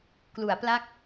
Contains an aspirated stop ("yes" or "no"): no